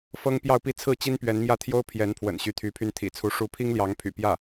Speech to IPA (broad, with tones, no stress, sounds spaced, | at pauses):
f ɤ˥ ŋ p j ɑ˥˧ ʊ̯ p i˥˧ t͡sʰ ɹ̩˥˩ t͡ɕ i˥ n p ɥ ɛ˧˥ n m j ä˥˩ t̪ʰ j o˥ ʊ̯ pʰ j ɛ˧˥ n pʰ w ə̰˨˩ n ɕ y˧˥ t̪ʰ y˧˥ pʰ y˥˩ n t̪ʰ ḭ˨˩ t͡sʰ u˧˥ ʂ u˧˥ pʰ i˥ ŋ l j ɑ˧˥ ŋ pʰ y̰˨˩ p j ä˥˩